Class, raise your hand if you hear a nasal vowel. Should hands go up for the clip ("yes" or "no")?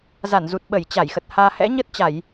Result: no